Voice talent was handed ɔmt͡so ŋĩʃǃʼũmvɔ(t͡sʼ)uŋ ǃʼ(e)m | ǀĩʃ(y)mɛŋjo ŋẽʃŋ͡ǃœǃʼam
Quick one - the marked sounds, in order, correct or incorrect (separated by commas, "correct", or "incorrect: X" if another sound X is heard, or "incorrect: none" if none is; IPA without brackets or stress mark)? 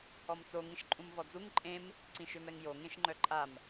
incorrect: d͡z, incorrect: ẽ, incorrect: ø